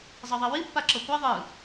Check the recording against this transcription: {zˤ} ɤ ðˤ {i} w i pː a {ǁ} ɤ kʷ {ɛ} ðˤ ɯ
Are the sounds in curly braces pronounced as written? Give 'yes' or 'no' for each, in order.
yes, yes, yes, yes

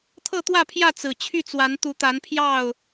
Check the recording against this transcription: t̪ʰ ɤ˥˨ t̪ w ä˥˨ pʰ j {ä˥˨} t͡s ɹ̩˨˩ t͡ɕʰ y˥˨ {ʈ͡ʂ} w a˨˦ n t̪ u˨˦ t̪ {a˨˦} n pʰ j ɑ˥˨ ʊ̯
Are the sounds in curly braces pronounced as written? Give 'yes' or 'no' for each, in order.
yes, no, yes

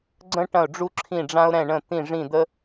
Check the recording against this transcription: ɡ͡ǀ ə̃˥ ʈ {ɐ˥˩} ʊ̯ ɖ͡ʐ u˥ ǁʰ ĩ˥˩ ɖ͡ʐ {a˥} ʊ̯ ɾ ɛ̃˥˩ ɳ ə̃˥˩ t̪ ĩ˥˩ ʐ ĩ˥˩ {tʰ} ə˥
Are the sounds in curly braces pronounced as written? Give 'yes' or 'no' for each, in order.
no, no, no

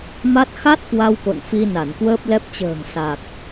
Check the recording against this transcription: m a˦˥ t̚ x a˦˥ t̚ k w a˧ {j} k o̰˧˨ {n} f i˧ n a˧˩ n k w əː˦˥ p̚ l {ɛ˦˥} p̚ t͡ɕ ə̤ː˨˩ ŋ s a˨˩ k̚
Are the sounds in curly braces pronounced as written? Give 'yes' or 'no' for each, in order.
no, yes, yes

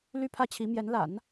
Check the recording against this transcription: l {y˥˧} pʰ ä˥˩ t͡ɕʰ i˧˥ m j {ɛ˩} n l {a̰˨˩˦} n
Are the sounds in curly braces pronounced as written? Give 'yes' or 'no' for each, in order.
no, no, yes

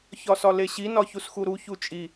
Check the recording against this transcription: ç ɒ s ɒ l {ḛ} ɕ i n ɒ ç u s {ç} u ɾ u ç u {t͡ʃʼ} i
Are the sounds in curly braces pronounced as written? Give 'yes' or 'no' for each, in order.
no, no, yes

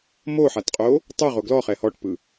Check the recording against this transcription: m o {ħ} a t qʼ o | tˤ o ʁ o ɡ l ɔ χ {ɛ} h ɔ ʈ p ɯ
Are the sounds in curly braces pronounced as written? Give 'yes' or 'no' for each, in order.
yes, yes

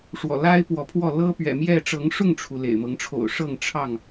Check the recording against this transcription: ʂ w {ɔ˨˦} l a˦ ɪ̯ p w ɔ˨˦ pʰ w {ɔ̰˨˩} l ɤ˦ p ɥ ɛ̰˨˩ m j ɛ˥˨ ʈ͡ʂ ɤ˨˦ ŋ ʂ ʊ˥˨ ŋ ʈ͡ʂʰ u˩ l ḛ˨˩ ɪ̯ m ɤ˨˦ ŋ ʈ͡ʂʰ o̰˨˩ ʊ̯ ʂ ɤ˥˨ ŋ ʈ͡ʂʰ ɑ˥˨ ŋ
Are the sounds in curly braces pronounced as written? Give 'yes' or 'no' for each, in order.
no, no

